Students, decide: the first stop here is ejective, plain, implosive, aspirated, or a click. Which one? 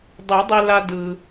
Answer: plain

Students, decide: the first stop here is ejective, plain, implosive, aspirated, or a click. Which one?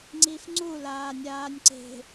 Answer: click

